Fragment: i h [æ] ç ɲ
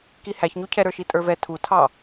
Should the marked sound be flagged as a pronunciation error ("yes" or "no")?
no